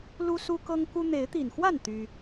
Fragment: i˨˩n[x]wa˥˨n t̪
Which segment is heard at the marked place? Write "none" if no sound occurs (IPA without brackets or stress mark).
x